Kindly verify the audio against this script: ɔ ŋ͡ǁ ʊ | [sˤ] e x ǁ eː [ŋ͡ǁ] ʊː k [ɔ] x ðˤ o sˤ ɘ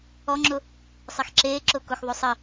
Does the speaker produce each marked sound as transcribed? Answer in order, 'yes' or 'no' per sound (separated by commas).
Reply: yes, no, no